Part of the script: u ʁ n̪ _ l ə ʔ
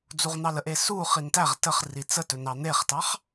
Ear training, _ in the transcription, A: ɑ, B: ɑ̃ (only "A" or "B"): A